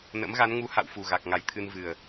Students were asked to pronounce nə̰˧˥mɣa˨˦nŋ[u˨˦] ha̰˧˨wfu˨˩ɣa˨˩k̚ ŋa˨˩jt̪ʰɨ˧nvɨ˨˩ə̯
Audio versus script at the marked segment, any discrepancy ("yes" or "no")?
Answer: no